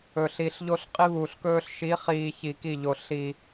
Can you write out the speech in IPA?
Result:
ɵ˨ɬi˨ɬ ʎo˦ɬqʼi˦βuː˨ɬkɵː˦ɬ ʃi˨˦χiː˨ çi˨ki˦˨ʎo˨ ɬi˨

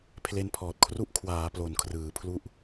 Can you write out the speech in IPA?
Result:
pʰle˧npʰɔː˨˩t̚kʰru˦˥ʔ kʰwaː˩˦ plo˨˩nkʰrɯː˩˦pʰlu˦˥ʔ

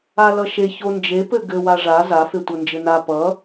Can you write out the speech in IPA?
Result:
alʌʃe çond͡ʒe pɘɡɘ waʐa za fetʷʌnd͡ʒɘna pʌ

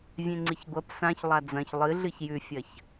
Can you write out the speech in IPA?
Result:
vʲẽŋ͡ǀiçɡʷɐp sãç lˠad͡zɐ̃ç lˠɨɮɨç jʉfʲɐç

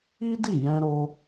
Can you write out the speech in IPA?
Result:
i˦di˦˨ jɛ̃˧ɾo˧

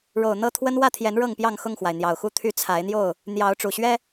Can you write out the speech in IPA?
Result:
ɻo˨˩ʊ̯n̪ɤ˥˨ t̪ʰwə˦n wä˥˨t̪ʰjɛ˨˦n ɻɤ˥˨ŋpjɑ˥˨ŋ xʊ˥˨ŋxwa˩ɪ̯ n̪jɑ˨˩ʊ̯xu˥˨t̪ʰy˦ t͡sʰa˨˦ɪ̯n̪jo˥˨ʊ̯ | n̪jɑ˨˦ʊ̯ ʈ͡ʂu˨˩ɕɥɛ˦

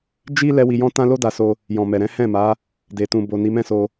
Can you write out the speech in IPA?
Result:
d͡ʒi˦ lɛ˦wi˧jɔ̃˦ tã˦lo˦ da˧so˧ | jɔ̃˨mɛ˨ɾɛ̃˨˦ hɛ̃˦˨ma˨˦ | de˨tũ˨ bo˨ ni˨˦mɛ̃˦so˧

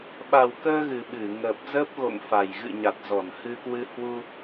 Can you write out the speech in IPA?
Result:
ɓa˨˩wkəː˧ ɣɨ˨˩ɓɨ˧˩ ŋəː˨˩p̚zəː˦˥p̚ɣo̰˧˨ŋfa˨˩j ɣɨ̰˧˨ɲa˨˩t̚ zɔ˧˩nhɨ˧kwɨ˧ hwu˧

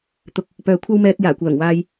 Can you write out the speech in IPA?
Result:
t̪ʊ˧k̚ | pœː˨kʷʰɐ˥wmɛː˧k̚ jaː˨˩kʷœː˨˩ŋwaː˧j

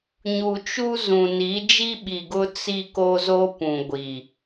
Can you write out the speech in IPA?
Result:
ɲu˨t͡ʃu˦zũ˨ ni˨˦d͡ʒi˦ɓi˨ɡʊ˦ t͡si˦ko˦zo˦ pũ˨ ɡʷi˨

